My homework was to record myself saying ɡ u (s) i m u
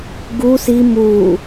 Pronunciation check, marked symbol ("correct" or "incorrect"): correct